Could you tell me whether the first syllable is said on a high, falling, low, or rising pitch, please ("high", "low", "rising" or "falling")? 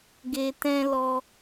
low